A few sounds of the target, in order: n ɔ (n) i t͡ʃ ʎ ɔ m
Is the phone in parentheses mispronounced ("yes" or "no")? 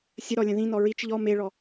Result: yes